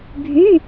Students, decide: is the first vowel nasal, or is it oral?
oral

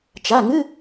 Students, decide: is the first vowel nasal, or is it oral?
oral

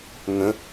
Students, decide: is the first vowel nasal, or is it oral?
nasal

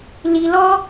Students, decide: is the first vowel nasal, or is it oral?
oral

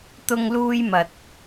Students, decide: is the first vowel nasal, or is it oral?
oral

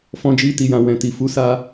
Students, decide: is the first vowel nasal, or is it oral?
nasal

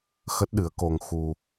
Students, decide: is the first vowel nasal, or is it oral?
oral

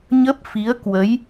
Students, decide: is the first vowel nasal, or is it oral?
oral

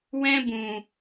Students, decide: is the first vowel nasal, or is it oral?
nasal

